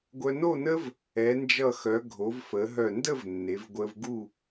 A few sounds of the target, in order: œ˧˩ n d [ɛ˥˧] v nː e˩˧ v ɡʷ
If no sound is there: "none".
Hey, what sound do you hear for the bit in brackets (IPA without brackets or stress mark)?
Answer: ə˥˧